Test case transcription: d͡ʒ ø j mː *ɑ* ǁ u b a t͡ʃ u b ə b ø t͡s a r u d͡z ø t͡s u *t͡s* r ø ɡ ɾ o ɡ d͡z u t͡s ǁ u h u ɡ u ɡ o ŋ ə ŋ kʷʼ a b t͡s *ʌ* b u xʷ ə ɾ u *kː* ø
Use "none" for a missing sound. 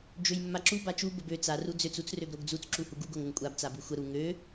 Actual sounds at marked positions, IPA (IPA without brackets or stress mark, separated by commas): a, t͡s, a, ŋ